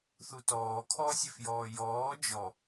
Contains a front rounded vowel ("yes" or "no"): yes